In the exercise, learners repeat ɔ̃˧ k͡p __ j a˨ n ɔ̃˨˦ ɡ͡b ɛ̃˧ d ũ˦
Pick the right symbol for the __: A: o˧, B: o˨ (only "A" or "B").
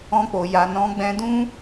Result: B